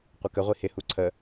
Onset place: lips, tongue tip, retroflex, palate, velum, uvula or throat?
uvula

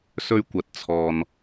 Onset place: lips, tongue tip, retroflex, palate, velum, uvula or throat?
tongue tip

